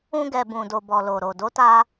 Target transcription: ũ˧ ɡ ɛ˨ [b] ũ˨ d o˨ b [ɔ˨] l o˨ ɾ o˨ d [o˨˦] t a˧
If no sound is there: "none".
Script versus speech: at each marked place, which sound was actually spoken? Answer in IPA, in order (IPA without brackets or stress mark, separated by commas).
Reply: b, ɔ˨, o˨˦